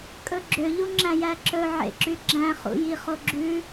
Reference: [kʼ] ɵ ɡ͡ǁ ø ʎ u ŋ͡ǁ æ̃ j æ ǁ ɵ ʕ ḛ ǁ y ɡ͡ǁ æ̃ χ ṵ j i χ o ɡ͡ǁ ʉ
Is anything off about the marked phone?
no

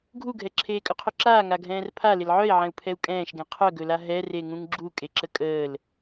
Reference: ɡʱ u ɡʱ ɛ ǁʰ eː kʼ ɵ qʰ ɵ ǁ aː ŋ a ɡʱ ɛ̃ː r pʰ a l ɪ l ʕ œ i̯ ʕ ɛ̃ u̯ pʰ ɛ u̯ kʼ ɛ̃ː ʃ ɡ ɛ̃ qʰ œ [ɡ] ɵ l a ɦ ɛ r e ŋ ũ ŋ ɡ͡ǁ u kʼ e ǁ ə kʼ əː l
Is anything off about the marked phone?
no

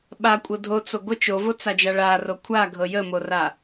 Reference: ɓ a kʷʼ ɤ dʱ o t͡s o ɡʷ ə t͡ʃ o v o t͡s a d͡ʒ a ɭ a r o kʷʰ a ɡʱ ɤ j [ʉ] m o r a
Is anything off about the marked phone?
yes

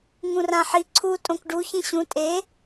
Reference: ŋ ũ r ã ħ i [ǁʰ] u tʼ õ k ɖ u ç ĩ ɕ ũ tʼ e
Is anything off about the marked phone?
yes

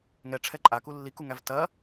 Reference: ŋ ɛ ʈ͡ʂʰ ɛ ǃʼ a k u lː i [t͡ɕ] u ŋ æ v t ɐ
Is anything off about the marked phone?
yes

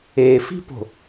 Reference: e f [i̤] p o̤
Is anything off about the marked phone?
no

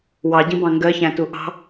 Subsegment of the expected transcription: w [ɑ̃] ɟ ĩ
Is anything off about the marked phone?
yes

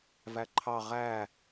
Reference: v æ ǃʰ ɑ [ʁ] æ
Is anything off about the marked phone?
no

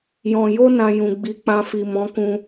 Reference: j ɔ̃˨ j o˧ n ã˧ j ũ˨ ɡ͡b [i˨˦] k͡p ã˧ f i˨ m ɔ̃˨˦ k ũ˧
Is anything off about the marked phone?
no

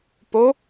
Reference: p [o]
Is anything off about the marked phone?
no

